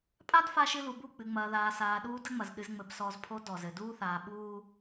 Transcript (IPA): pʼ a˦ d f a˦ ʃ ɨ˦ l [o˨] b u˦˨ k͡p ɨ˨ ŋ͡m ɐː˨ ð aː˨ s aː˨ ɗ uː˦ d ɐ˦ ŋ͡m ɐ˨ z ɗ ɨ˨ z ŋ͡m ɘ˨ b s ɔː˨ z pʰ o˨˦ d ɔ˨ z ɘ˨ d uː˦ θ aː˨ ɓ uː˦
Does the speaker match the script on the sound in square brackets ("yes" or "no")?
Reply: no